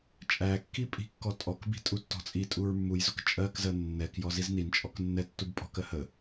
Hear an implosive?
no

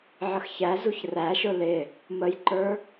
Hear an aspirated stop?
no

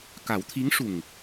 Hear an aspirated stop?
yes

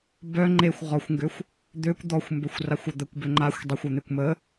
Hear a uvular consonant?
yes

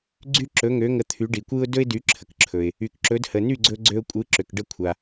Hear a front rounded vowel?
yes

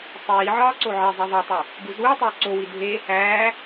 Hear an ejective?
no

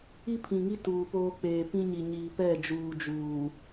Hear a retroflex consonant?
no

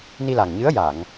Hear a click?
no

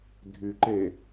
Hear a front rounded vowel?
yes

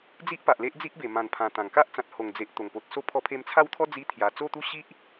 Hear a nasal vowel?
yes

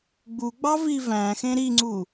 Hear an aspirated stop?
no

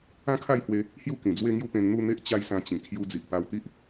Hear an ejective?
no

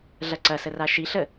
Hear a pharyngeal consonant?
no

